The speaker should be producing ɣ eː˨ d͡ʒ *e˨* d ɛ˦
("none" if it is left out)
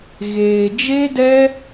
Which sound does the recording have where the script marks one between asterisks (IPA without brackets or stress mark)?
e˦